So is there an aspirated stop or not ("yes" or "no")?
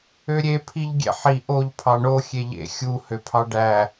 yes